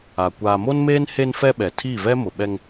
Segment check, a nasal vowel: absent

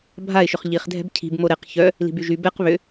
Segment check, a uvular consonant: present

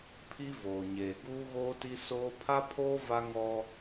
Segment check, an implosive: absent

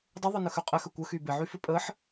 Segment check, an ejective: present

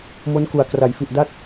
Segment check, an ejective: absent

